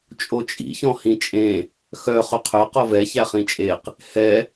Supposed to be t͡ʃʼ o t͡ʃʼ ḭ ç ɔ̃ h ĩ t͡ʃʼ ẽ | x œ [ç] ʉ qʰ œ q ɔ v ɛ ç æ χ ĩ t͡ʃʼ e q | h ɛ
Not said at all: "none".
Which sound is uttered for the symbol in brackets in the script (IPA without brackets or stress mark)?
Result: χ